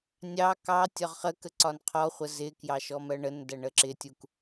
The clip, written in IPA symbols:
nʲɑ kɑ tʲɒʁχəkə ǀɒnqʰɔχʷə zɪkjɑ ʃɔmɜɳəndæ ɳəǁɪtʲuk

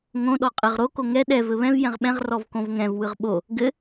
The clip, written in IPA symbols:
ŋõ ɗɔqʼɘʁ ɾo koŋɛ ɗɛ vɘβɛ̃v jɛ̃ʁɓɛ̃ʁ rɔvkõvŋɛ̃v wɯʁɓo | ɡɘ

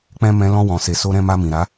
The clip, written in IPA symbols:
k͡pɛ̃˦ mɛ̃˧ lɔ̃˧wɔ̃˨se˨ so˧ɾɛ̃˧ma˧mĩ˨ ɾa˨˦

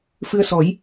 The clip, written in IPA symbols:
fɨ˧ə̯sɔ˨˩˦j

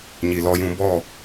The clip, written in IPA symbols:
ɲi˨lɔ˧jũ˧ bɔ˦˨

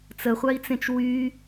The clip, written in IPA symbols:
t͡səχʷai̯t͡sẽt͡ʃ wy

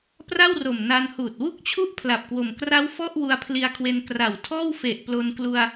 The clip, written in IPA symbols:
pra˥˩wro˨˩m na˧nhuː˨˩t̚ wu˥˩k̚t͡ɕʰu˥˩ʔ pʰla˨˩p̚kwo˨˩m kra˦˥w fɔ˥˩ʔ wu˧a̯pʰli˧a̯kʰwe˧n kra˨˩w tʰɔː˥˩wfe˨˩ʔplo˧nklu˧a̯

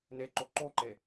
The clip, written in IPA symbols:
neǃo ǃoǃe

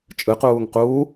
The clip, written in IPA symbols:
t͡ʃʼɯquːŋ quː

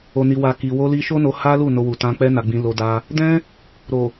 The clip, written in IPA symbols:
o˨ni˨wa˨ki˨ wo˧li˧ ʃo˦no˧ ha˦lu˦˨ no˧wu˨tã˧k͡pɛ˦ na˧ɡ͡bĩ˧lo˧ da˧ | dɛ̃˦ | ɾo˨

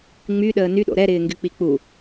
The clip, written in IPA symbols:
ŋ͡my ɗəːny ɗo̰ɾɛ ɾɪːŋɡyk͡pik͡pu

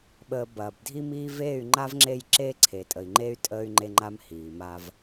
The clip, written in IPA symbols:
ɓəː˨ bɐː˨b dʱi˦miː˦ veː˦˨y̯ŋ͡ǃa˦vŋ͡ǁe˦˨j ǁeː˦ǀʰeː˨tʼə˨i̯ŋ͡ǃeː˦y̯ tʼəː˦y̯ŋ͡ǃe˦ŋ͡ǃa˦m hiː˨ma˦v

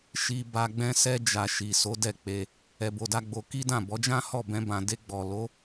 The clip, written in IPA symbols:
ʃi˧ba˧ɡ͡bɛ̃˦ sɛ˧d͡ʒa˨ ʃi˨so˨˦ dɛ˦˨k͡pe˧ | ɛ˧bo˧da˦ɡ͡bo˧ ki˦dã˦˨ bɔ˨˦d͡ʒã˦hɔ˦˨ bɛ̃˧bã˨ de˧ɡ͡bɔ˨lo˨˦

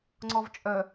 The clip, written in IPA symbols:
ŋ͡ǀɔvt͡ʃʼœ

